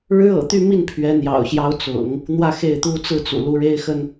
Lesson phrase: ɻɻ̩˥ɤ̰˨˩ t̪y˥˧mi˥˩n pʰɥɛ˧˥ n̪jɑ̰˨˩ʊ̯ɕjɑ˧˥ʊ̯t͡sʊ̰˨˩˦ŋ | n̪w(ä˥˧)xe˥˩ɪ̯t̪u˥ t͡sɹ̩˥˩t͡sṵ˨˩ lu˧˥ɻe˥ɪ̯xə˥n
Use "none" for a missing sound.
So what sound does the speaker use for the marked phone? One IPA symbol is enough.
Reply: ä˥˧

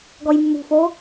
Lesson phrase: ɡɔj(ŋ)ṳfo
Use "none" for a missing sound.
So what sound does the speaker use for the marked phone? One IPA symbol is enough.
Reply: mː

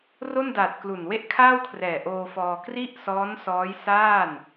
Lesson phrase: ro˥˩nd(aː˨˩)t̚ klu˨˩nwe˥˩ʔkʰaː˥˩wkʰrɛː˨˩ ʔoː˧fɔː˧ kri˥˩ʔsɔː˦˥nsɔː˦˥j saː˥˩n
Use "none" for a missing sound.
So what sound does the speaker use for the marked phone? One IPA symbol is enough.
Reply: aː˨˩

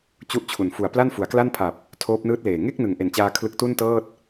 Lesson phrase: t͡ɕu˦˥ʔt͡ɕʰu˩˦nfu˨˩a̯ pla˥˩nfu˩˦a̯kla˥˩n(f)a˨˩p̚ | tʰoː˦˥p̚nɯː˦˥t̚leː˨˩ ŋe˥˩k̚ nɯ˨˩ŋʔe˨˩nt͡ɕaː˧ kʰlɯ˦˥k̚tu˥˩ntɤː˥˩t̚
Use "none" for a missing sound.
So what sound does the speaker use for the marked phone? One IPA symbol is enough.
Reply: pʰ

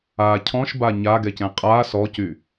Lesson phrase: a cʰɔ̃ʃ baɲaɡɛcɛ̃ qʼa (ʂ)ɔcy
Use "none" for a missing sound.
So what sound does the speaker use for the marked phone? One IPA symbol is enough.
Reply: s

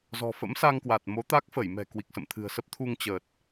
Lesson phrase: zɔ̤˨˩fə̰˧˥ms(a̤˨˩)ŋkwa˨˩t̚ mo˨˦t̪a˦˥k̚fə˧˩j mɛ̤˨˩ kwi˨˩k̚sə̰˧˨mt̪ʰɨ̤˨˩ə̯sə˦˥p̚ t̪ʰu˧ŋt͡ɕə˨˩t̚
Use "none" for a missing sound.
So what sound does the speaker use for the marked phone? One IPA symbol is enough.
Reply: a˧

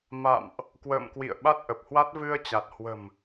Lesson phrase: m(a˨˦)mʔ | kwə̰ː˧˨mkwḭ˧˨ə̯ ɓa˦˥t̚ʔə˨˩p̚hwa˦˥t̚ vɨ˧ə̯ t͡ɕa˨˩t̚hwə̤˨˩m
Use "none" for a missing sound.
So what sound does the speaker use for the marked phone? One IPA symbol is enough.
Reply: a̰˧˨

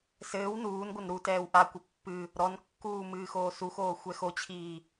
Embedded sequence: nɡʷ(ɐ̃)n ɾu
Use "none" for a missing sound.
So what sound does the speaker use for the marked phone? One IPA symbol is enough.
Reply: ɐ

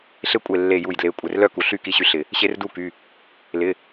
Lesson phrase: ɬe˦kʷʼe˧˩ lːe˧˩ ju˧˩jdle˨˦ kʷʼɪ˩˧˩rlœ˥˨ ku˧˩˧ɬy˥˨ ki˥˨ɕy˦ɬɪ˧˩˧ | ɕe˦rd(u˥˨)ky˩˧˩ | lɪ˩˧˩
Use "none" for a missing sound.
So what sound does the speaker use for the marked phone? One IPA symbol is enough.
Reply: u˥˨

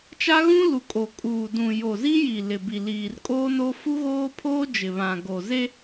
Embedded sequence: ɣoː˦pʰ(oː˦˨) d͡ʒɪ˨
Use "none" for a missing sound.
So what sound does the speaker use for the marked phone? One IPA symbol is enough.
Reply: oː˦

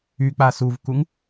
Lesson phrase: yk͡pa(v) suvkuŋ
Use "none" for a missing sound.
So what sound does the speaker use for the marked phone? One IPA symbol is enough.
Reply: none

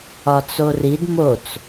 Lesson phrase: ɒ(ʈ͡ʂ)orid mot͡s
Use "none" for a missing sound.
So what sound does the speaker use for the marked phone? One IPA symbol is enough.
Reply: t͡s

